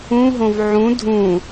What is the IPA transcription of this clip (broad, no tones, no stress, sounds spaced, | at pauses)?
ũ ɦ õ v ʕ ũ dʱ ũ